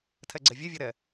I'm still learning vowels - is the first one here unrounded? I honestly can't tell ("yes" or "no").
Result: yes